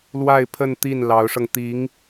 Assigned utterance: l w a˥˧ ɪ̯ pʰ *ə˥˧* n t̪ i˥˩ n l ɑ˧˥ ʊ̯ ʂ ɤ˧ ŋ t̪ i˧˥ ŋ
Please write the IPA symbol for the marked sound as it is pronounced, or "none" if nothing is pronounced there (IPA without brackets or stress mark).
ə˥˧